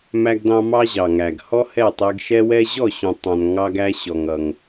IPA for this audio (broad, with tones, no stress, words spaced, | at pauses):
mæ˧ɡdɑ̃˧ mɑ˦ʑɑ˨ŋæ˨ɡ hɔ˦hɛ˦˨tˤɛ˧ɡ ʃɛ˦wɛ˦ ʑɔ˦˨ɕũ˨tˤɑ̃˨n ŋɑ˧ɡ æ˧ ɕɔ˨ŋʌ˨ŋ